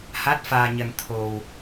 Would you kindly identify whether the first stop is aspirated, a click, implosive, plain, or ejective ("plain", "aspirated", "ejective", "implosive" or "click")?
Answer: plain